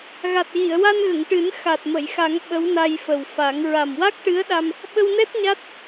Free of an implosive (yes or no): no